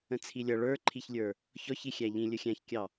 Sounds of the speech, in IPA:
ə̃t͡sʰilʲʌ ɭə˞ǃʰiçlʲə˞ | çɔçixʲæ ʎĩ lʲəxʲæ̃çkʲɑ

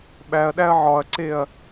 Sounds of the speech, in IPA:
ɓæɐ̯ɗæɐ̯ ʕɒɐ̯ǀeɐ̯

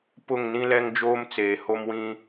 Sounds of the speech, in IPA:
pʊ˦˨ŋnĩ˦lɛ˦ŋ d͡ʒoː˦mt͡seː˨ ho˦mwĩ˦

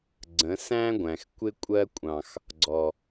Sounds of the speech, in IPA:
ɡ͡ǀə̃˨˦sæ̃˦ɡʷæ̃˨x kʷɪ˧kʷʼɜ˧kʷʼɑ̃˨x | ɡ͡ǀɔ˨

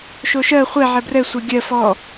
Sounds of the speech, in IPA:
ʃoʃɜ χʷɛ ʕɛbrɛ sʷɛɡʲɜ fɔ

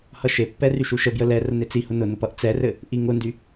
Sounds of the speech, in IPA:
hʌʃepːɛ ryʃuʃəbjə lɛ rənet͡sihʊ nʊnʊp ʌʔt͡sɛrɘ | ʔiŋʊndy

